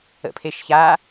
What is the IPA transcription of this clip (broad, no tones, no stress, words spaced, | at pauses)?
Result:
ə̰pʰeʃ ça